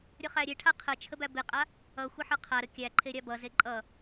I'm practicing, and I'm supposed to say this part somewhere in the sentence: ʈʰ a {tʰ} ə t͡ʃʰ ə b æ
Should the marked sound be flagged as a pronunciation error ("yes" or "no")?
yes